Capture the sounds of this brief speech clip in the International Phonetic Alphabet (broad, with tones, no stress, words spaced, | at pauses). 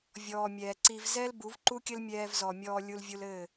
vʲɔː˨mʲɛː˨ǀi˧v zɛ˦l bu˨˦vǃu˦kʲɘ˦lmʲɛː˧v zɔ˨mʲɔː˧ lʲu˧lvʲu˧lɘː˦˨